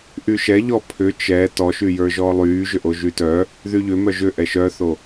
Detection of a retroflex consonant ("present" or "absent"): absent